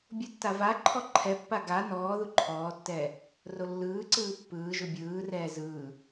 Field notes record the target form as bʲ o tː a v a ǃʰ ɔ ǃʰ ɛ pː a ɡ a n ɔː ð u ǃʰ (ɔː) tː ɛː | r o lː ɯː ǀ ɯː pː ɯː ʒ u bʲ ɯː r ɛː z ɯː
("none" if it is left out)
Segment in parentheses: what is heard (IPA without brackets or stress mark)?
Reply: ɔː